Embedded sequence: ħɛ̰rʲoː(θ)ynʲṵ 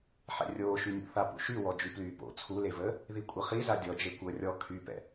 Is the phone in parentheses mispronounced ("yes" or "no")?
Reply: yes